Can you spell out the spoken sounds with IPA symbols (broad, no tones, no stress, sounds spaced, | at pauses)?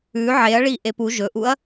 ʉ ʕ e ɐ̯ ɭ i ʔ e p u ʒ ɵ ʔ u ɐ̯